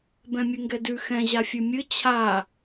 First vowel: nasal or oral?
nasal